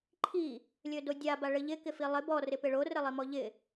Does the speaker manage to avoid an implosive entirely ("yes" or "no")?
yes